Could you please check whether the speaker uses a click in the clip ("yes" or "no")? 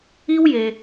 no